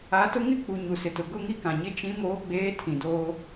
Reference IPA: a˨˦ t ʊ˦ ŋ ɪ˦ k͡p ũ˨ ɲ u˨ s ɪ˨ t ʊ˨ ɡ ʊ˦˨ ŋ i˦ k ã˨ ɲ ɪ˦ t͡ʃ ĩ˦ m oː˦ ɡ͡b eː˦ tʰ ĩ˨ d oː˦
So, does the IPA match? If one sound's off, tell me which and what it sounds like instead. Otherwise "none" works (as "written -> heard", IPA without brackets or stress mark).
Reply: ũ˨ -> u˨